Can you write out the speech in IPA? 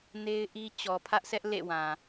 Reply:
ne˦ɪ̯ʔi˦ t͡ɕɔ˨pʰä˦ʔsʰɛ˦ʔ lḛ˦˨wã˨

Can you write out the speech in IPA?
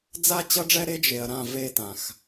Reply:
d͡za˦t͡ɕʌ˦ɖ͡ʐɛ˦ ɾe˦d͡ʒe˨ɐ̯ɾã˦˨ ve˦˨tã˨x

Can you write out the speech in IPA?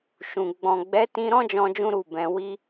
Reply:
ʃũ˨ ɡ͡bɔ̃˨ ɡ͡bɛ˨˦tĩ˧ɾɔ̃˦d͡ʒɔ̃˧ d͡ʒũ˦ɾu˦˨bɛ̃˧ wi˧

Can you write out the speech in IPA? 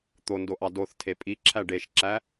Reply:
t̪ondoʔɑ doθ tʰepʼiǁʰæ ɖeʃǁæ

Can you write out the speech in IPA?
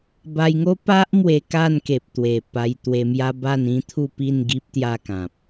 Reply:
ba˧jŋo˦ pa˦ʔmwe˧ ka˥˧nke˨p̚ t̪we˨˩pa˧jt̪we˧mja˦ ba˥˧nĩ˦t̪ʰu˥˧pi˥˧n ɡi˦p̚t̪ja˥˧kã˨p̚

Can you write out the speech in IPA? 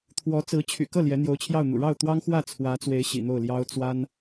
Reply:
t̪ʰwɔ˧˥t͡sɹ̩˧˥ t͡ɕʰy̰˨˩kɤ˥˩ ljɛ˧˥n̪jo˧˥ʊ̯t͡ɕʰjɑ˥˩ʊ̯n̪ṵ˨˩ ɻɑ˥˩ʊ̯t̪wɑ˥ŋxwä˥˩ t͡sʰwä˧˥t͡swe˧˥ɪ̯ ɕḭ˨˩n̪o˥˩ʊ̯ljɑ˥ʊ̯ t͡swa˥n

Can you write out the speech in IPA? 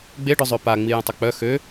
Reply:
ɡ͡beɖœzˤø paŋ͡mi jə̃tˤʊk͡pœ xø

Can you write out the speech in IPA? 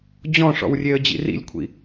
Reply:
d͡ʑɔ̃ʂɔ̰wrʲeə̯d͡ʑḭ rḭlʲkʷʰḭ

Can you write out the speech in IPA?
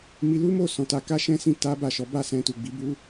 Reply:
mi˧lu˦mo˦˨sɔ̃˨ ta˧ka˦ʃɛ̃˦sĩ˦˨ ta˨˦ ba˦˨ʃɔ˨˦ ba˦˨sɛ̃˧tu˨ ɡ͡bi˨˦bu˦

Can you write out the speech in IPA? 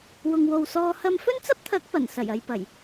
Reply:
wʊ˨ŋwo˨wsɔː˧ hɐ˧mfɵ˥nt͡sɐ˥p̚t̪ʰɐ˨˥k̚ pɐ˨˩n sɐ˨˩jɐ˨jpɐ˨˩j

